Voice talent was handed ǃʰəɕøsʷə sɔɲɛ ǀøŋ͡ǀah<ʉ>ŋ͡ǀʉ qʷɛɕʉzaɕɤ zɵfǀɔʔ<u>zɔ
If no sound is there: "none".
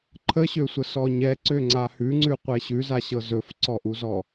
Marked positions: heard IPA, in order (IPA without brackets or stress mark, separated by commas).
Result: ʉ, u